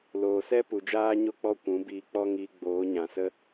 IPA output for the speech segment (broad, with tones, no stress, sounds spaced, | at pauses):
l oː˨ s ɛ˦ p u˨ d͡ʒ aː˦ ɲ o˦ k͡p ɔ˦ kʷ ũ˨˦ b iː˨ k͡p ɔ˧ ŋ iː˨ ɡ͡b oː˨˦ ɲ ã˨ s ə˦